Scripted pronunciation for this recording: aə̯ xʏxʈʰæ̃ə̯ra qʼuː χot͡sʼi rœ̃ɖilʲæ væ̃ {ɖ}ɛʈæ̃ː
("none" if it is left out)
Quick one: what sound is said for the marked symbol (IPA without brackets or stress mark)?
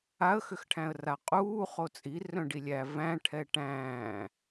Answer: ʈʰ